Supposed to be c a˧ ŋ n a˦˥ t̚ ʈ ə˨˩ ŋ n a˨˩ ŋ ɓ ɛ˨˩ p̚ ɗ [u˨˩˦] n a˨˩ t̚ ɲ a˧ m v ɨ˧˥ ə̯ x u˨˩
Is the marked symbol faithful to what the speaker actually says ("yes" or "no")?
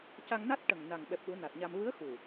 yes